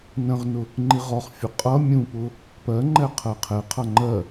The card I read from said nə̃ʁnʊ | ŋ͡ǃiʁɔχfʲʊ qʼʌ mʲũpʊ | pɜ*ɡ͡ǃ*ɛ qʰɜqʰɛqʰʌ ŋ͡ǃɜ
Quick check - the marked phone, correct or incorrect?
incorrect